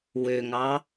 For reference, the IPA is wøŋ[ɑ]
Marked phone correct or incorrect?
correct